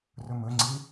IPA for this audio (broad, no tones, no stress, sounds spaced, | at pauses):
r ɵ m ɵ ŋ͡ǀ i